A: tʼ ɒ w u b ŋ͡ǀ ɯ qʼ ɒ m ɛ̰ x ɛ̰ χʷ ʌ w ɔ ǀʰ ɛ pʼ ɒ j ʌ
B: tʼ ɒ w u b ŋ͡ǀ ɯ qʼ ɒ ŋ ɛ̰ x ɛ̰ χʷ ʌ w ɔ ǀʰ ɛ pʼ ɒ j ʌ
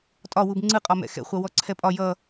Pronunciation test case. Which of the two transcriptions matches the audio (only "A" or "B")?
A